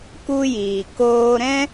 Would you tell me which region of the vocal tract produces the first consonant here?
velum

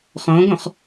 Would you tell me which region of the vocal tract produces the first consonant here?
uvula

